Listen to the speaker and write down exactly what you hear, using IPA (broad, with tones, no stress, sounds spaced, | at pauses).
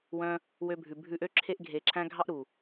w œ̃˧ | w ø˧ bʱ ʉ˨ bʱ ʉ˧ ʔ ø˦ ǁʰ e˧ ʔ ɡʱ e˨ ǁʰ æ̃˧ ɡʱ ɑ˦ ʔ ɾ u˨